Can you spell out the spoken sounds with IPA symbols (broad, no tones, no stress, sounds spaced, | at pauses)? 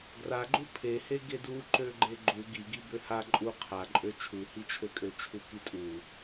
ɡ r a ɡ͡ǃ u pʰ e h e ɡ e d u ǃ ø ɡ͡ǃ e ɡ͡ǃ u ɡ i ɡ i b ø h a ǃʼ u qʰ a ǃʼ ø t͡ʃʰ u h i t͡ʃʰ ø kʼ ø t͡ʃʰ u k i tʼ u